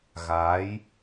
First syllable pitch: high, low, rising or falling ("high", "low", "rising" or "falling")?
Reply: rising